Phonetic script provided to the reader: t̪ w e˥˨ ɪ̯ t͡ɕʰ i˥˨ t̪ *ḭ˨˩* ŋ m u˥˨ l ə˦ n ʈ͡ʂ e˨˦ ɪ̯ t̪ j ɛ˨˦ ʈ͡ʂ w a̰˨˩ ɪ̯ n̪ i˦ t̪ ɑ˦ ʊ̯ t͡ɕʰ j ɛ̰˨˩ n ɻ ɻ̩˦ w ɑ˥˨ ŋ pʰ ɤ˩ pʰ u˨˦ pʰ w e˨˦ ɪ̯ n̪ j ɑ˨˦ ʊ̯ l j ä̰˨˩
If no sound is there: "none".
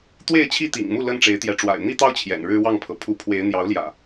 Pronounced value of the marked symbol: ḭ˨˩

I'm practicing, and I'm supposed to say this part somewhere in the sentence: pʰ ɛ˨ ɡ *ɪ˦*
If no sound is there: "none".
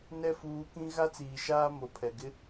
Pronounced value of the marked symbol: ɪ˦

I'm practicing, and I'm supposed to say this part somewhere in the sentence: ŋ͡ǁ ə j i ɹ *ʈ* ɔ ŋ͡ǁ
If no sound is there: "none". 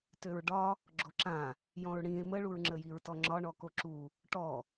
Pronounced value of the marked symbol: t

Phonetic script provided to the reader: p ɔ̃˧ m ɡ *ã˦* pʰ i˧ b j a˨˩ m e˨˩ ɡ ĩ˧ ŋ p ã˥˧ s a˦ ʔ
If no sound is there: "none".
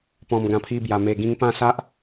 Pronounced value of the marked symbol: ã˧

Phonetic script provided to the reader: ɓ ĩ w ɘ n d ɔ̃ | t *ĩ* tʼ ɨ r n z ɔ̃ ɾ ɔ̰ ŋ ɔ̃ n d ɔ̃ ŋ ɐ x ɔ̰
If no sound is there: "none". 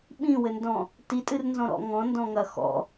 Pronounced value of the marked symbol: i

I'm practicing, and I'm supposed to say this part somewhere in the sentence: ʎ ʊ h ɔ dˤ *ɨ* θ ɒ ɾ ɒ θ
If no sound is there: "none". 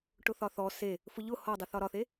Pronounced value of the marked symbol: ɨ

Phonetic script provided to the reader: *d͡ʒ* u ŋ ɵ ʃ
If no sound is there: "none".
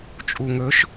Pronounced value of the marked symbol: t͡ʃʼ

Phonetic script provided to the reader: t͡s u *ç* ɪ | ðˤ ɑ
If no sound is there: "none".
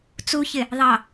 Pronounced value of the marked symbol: ç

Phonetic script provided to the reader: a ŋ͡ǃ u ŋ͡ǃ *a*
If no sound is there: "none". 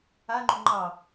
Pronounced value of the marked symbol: ɑ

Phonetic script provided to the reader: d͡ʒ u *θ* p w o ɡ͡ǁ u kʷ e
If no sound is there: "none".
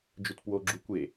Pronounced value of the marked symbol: t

